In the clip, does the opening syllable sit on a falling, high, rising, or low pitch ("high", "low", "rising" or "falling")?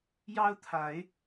high